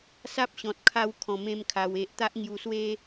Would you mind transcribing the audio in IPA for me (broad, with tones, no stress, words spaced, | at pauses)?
sa˦p̚ɕɔ̃˨t̚ kʰa˦w kʰɔ̃˧mẽ˥˧mkʰa˧we˦ʔ t̪a˦ʔŋju˧swe˦